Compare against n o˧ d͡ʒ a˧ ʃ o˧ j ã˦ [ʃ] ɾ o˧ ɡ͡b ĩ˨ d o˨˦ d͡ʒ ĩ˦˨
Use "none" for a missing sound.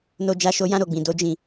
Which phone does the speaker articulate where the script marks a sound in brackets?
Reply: none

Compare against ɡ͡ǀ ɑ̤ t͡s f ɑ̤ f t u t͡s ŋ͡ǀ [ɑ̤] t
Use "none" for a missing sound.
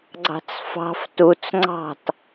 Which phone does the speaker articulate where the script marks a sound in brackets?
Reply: ɑ̤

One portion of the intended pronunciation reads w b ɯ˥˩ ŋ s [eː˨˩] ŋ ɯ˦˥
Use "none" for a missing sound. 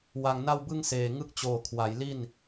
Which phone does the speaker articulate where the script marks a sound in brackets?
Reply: eː˨˩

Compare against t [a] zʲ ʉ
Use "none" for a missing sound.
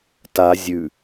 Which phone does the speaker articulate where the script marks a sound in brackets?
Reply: a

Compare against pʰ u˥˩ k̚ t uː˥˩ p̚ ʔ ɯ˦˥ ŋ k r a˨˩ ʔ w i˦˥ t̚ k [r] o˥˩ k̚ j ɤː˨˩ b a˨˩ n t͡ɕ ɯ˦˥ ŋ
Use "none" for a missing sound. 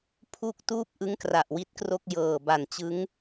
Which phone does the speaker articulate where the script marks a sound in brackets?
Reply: r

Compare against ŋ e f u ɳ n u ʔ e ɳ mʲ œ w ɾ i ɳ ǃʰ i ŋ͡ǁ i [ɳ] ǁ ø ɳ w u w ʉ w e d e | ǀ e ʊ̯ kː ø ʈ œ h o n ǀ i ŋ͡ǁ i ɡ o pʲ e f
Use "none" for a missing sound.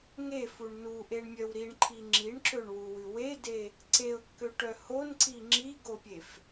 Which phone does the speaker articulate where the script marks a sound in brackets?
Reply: ɳ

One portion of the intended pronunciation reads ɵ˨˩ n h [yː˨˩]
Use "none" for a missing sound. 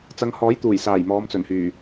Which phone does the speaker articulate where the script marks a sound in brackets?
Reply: yː˨˩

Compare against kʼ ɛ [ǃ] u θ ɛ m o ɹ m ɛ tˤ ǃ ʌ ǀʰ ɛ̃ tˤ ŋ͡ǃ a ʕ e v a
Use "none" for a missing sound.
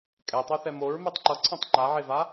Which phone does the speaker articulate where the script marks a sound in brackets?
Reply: tˤ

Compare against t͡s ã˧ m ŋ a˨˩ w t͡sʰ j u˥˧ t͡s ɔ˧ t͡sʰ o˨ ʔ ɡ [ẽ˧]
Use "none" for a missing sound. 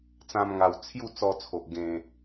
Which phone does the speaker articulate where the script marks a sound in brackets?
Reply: ẽ˧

